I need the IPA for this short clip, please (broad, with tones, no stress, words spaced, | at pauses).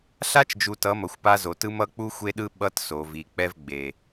ɬa˦t͡ʃd͡ʒu˨tʌ˨˦ mʌ˨xʷpa˦zo˨ tɯ˦mʌ˦ k͡pu˦xʷe˦ɗɯ˦ ɓʌ˦tso˨ vi˨k͡pɛ˦vɡ͡be˨